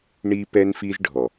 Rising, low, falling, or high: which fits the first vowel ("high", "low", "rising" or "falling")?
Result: high